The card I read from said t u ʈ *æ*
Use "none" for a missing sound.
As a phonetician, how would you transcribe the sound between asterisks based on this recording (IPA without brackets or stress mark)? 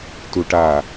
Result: a